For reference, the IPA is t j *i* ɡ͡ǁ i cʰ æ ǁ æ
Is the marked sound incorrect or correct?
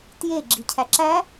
incorrect